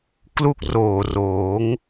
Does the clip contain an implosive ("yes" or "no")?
no